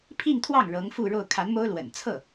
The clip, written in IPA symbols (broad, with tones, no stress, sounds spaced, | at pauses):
pʰ i˥˧ ŋ t̪ʰ w ɑ˥˩ ŋ ɻ ɤ˧˥ ŋ f u˥˧ ɻ o˥˩ ʊ̯ kʰ a˧˥ n m o˥ ʊ̯ l w ə̰˨˩ n t͡sʰ ɤ˥˩